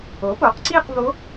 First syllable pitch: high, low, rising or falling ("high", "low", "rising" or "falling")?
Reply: rising